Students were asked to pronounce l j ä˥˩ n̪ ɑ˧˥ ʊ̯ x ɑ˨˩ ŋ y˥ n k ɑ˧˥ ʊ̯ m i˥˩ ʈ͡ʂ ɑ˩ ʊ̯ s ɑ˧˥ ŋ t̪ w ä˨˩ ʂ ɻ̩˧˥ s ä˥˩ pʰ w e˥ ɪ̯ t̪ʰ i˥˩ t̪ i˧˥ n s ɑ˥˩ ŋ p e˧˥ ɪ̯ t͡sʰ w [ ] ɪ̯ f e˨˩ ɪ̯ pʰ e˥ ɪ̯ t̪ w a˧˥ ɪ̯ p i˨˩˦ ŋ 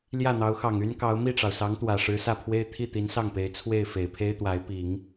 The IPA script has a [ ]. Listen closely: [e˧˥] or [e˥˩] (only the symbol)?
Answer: e˥˩